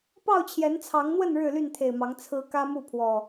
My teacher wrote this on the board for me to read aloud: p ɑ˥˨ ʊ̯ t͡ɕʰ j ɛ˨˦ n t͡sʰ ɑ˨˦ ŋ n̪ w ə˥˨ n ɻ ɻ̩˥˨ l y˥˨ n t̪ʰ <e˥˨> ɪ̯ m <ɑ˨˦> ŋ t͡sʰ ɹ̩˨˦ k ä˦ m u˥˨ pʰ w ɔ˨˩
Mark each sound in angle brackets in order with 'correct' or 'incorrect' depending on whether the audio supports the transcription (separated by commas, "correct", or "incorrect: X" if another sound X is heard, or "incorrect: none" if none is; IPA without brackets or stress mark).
incorrect: e˨˩, correct